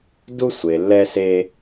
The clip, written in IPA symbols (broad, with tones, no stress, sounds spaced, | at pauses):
d u˧ sʷ e˩ lː ɛ˧ s e˧